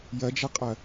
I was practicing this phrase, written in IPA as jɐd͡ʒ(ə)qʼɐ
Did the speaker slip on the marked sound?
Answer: yes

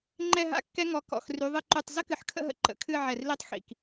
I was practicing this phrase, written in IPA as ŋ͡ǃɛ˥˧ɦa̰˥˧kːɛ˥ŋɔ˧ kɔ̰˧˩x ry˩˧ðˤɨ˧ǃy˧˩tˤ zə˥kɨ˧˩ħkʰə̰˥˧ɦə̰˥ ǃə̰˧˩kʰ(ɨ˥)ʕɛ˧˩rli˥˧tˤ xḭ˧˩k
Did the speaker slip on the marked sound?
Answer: yes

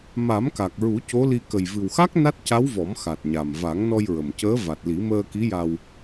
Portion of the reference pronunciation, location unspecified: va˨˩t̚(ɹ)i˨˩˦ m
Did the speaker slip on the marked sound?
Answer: yes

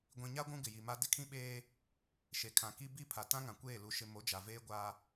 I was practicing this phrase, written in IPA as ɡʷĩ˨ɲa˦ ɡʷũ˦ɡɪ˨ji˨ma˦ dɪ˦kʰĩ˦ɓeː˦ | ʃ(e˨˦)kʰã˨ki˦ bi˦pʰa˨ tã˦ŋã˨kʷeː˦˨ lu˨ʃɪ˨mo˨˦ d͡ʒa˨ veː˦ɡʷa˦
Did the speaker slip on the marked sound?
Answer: yes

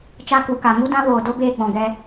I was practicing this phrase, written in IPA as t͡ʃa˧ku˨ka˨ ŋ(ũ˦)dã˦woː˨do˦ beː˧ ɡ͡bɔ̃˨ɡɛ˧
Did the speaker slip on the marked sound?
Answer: yes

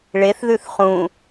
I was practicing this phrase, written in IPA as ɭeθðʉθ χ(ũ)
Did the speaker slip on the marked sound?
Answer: no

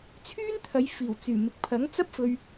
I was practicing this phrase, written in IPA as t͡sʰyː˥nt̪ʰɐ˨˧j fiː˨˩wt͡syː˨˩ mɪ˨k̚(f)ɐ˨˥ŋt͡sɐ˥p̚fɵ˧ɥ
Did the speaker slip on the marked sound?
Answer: yes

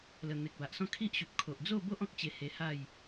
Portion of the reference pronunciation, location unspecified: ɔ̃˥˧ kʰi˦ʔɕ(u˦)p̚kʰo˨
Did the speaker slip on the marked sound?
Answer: yes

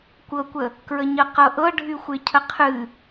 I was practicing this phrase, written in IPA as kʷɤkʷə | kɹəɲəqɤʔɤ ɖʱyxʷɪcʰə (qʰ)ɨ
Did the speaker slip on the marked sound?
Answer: no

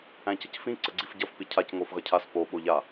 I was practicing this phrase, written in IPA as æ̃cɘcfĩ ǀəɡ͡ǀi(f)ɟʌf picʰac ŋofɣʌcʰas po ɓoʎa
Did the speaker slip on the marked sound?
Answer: no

